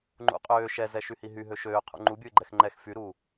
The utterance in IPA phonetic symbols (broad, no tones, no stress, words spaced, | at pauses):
ŋ͡ǃṵqʼøː ʃɛ zɛʃyhiɦy ɦøʃøː qʰṵŋ͡ǃu bʲuɪ̯ɡ͡ǃɛxŋ͡ǃɛx fyɾuː